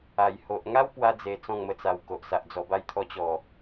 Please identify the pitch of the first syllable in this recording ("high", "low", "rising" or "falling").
low